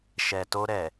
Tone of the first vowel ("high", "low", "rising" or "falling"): low